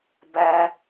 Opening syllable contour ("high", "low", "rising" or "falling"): high